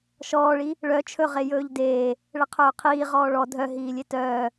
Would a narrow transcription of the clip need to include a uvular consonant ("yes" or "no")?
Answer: yes